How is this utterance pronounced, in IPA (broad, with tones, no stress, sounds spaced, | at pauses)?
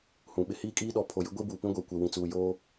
h ũ˨ ɓ ɪ˦ h iː˦ kʼ iː˦ ɗ ɔ˨˦ pʰ o˨ j ɪ˦ ɡʷ i˦ b uː˨ p ĩ˦ ɡʷ e˨ kʷ e˨ w ĩ˨ t͡s uː˨ j oː˦